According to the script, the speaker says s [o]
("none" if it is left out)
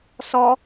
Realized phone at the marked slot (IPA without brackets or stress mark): ɔ